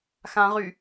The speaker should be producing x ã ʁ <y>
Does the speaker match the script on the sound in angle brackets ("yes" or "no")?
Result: yes